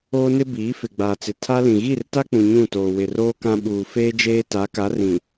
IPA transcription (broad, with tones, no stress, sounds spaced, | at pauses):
oː˦ n ɪ˦ b iː˨˦ f ɪ˨ ɡ͡b aː˨ t͡s ɪ˨ tʰ a˦ l ĩ˨ ɣ i˦˨ r t a˦ k͡p ũ˨ ɲ ũ˦˨ t oː˨ w ɪ˨ r oː˦ k ã˦ ɓ uː˨ f eː˦ d͡ʒ eː˦ t a˨˦ k a˨˦ r ĩ˨